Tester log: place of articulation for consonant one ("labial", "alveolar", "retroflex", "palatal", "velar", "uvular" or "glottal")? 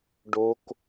retroflex